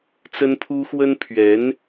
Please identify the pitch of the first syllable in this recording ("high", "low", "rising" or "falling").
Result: high